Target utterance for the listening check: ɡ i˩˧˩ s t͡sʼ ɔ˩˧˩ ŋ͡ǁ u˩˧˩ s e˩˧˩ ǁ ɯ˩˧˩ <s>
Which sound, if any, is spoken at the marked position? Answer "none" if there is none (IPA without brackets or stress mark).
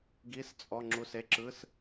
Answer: s